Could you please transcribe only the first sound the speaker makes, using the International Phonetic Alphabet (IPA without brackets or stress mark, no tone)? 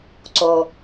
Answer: ǀ